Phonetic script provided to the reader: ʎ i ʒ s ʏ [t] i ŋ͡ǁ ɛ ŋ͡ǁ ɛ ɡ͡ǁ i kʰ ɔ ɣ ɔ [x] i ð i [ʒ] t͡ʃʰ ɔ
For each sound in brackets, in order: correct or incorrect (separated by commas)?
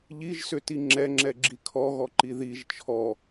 correct, incorrect, correct